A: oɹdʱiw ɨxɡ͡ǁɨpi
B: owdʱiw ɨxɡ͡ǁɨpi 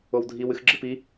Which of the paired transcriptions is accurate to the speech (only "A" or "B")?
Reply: B